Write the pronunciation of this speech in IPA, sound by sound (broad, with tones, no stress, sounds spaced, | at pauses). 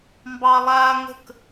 m b ɑ˦ lˠ aː˦ ŋ ə̤˥˩ k